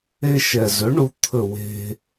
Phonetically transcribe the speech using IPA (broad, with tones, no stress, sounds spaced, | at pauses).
e˧ ʃ ɛ˩ z ɵ˩˥ ɳ u˧ t̪ʰ ɵ˧˩ w e̤˧